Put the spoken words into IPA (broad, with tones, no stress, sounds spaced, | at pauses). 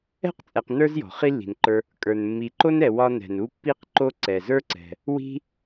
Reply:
ɛ̤˥ q t͡sʼ ɛ˨ q n ə˞˥ z j ɔ̤˩ χ i˦ lː i̤˩ n ǃ ə˞˨ | kʼ ə˞˩ n mː i˨ ǃ o˥ n ɛ˨ w ɒ˦ n ɛ̤˩ n u˦ pː i˦ q ǃ o˦ ǀ ɛ˩ z ə˞˥ ǀ ɛ̤˩ | w i̤˦